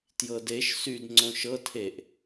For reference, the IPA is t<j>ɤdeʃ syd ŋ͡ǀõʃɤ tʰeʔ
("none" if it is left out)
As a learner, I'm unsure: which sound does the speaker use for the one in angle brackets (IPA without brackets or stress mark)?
j